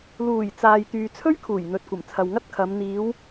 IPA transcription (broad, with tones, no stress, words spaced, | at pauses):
luː˨˩j t͡saː˨j t̪yː˨t͡sʰɵ˥ɥkʰuː˨˩j n̪ɵ˨t̚kʷɐ˨˩mt͡sʰɐ˨w ŋɐ˥t̚kʰɐ˨˧m n̪iː˨˧w